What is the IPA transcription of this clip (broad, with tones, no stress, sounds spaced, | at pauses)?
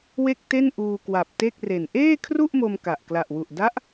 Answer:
w e˥˩ k̚ t e˥˩ n ʔ uː˧ k w a˨˩ p̚ t e˥˩ k̚ r e˨˩ n ʔ eː˥˩ kʰ r u˥˩ ʔ m o˧ m k a˨˩ ʔ k l a˨˩ ʔ w u˨˩ ʔ d a˦˥ ʔ